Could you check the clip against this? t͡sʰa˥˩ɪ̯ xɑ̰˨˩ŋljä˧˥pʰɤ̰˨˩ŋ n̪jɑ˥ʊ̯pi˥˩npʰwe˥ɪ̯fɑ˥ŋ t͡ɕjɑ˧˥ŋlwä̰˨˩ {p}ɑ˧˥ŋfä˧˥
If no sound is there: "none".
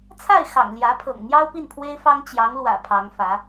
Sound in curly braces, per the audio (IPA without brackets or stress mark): pʰ